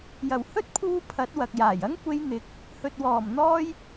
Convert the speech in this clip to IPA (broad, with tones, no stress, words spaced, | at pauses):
jɐ˨˩whɵ˥t̚pʰuː˧ pʰɐ˨˥t̚wɐ˨k̚jaː˨˩jɐ˥ŋ kʷe˨˧j n̪ɪ˨˥k̚ | hɵ˨t̚wɔː˨˩m n̪ɔː˧j